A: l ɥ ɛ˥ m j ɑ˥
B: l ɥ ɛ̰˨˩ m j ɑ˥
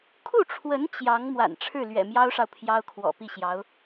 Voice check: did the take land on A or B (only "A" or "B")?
B